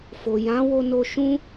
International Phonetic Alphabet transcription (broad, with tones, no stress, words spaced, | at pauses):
fo˨jã˨˦ wo˧no˧ʃũ˦